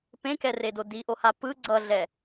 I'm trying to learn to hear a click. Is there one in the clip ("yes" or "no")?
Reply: yes